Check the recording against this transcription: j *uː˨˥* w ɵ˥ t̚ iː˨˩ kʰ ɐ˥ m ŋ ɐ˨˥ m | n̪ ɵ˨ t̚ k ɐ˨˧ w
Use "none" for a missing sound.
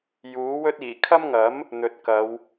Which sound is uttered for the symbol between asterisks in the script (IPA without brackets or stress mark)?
uː˨˥